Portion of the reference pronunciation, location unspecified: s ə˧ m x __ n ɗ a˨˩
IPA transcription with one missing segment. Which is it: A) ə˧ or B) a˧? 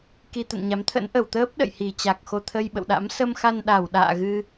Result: B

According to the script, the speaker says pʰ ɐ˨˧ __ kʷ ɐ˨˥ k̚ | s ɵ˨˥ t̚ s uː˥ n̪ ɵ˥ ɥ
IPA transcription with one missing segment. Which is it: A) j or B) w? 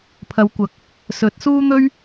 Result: B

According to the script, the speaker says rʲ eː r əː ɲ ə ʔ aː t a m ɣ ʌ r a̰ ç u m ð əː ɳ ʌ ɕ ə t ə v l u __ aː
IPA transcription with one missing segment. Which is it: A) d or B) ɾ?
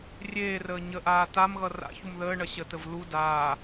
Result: A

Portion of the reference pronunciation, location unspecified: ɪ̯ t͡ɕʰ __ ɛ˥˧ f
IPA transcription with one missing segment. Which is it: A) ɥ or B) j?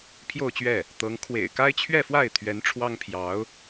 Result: A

